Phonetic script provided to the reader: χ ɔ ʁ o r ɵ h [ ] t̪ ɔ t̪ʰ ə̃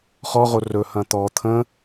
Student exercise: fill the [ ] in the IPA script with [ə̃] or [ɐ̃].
ɐ̃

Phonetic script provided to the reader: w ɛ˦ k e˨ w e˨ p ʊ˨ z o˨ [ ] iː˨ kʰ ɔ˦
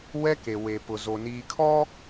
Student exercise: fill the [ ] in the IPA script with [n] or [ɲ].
n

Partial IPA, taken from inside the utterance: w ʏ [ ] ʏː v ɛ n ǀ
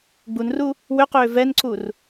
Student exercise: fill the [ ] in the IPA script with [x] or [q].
q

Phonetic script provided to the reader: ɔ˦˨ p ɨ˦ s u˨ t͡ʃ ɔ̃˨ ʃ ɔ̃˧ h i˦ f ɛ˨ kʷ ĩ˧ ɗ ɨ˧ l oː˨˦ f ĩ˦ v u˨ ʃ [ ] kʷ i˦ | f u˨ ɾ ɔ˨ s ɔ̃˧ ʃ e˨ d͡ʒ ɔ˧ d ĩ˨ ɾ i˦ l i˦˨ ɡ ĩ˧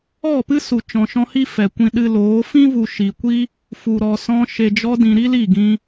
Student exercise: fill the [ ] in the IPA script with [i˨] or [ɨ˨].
i˨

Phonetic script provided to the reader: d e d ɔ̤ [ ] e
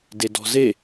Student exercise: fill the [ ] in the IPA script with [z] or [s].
z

